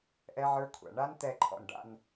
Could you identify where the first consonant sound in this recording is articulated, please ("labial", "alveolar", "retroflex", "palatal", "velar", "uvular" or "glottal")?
glottal